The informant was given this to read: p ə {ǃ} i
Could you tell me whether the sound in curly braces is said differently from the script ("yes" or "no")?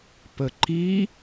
no